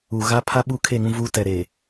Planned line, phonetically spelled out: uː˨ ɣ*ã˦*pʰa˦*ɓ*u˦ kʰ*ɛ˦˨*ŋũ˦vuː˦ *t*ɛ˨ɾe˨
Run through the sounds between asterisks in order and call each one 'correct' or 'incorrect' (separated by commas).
incorrect, correct, incorrect, correct